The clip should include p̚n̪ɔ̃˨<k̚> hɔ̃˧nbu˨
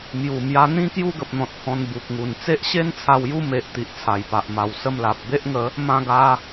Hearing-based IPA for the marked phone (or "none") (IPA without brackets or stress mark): t̚